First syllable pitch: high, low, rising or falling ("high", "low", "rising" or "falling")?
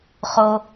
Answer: high